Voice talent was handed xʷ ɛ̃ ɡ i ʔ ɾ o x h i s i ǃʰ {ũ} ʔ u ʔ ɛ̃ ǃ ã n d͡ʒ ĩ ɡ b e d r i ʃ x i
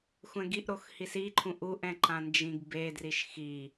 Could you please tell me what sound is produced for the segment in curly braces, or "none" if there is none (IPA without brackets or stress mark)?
ũ